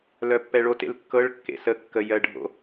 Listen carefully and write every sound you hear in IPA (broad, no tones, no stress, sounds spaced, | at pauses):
l œ pː ɛ ɭ o t ḛ l kː ɤ ɭ kː ḛ s ə kː ə j ɜ ɖʱ o̰